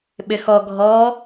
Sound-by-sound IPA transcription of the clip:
ɓ ɪ x ɔ ɡʱ ɔ

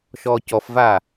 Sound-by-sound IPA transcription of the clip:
ʃ ɔː c ɔ f v aː

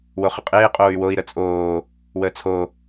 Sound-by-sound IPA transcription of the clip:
w o χ ə qʼ eː qʼ oː y̯ w o i̯ ɾ ə t͡sʼ oː | w əː t͡sʰ o

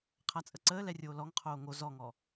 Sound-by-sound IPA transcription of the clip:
qʰ a t͡sʼ ə ǀ əː l ɛ rʲ oː l ɔ ŋ qʰ oː ŋ o z ɔ ŋ ɔ

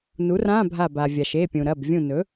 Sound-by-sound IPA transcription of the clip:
n u˩˥ r ã˧˥˧ bʱ a˧˩ b a˩ vʲ a˩ ʃ e˩˧˩ pʲ ũ˩ ɾ ɐ˩˧˩ b vʲ ũ˧˩ n ɵ˩˥

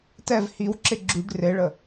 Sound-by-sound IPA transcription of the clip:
t ɛ v h i w ǁ ɪ ɡ͡ǁ y ɖ r e ɭ ə

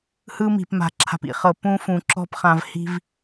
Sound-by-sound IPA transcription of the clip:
h ɯ˦ m i̤˨ p m a̤˨ ǁʰ a̤˨ p ḭ˨ χ ɤ˨ p ũ˦ f ũ˨ ǁ ɔ̤˦ p χ ã˨ v h i̤˦ v

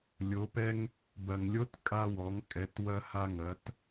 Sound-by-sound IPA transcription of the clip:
lʲ o˩˧ p ɛ˧ ŋ | b ɐ˩ ŋ lʲ o˧˥ t kʼ a˧ w ɔ˩˧ ŋ kʼ ɛ˩˧ t w ɐ˧ h a˧ ŋ ɐ˩˧ t

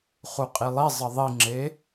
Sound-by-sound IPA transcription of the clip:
χ u qʼ i lˠ i zˤ ə ðˤ i ŋ͡ǁ e

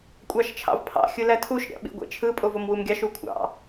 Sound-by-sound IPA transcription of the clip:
kʷʼ ɑ ʃ t͡ʃʰ ɑ̰ v pʰ ɑ̰ xʲ ɯ l æ tʰ u ʃ ɾʲ ɑ̰ ɓ ḭ ɡʷ ḛ t͡ʃʰ ɯ pʼ o v o m w u m ɡʲ ɑ ʃ u kʷʰ ɑ̰

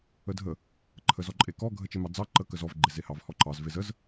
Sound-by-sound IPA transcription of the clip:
ə dʱ ə | ǃʰ ə z ɔ ǃʼ e k ɔ ɡʱ ə t͡ʃ e m ɑ d͡z ɑ ǃ ə k ə z ɔ v ɡ͡ǃ e z e h ɑ v h ɔ ǃ ɑ z v e z ə z

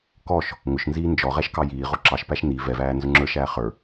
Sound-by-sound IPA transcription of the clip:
k ɔ ʃ | ŋ ʊ ʃ n z iː n d͡ʒ ɔ ʁ ɛ ʃ k ɑ j iː ʁ ʊ ǁ ɑ ʃ p æ ʃ n i v ɛ v æː n z ʊ ŋ͡ǁ ə˞ ʃ æː χ ə˞

